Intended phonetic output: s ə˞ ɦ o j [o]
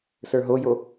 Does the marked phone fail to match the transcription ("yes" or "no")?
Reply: no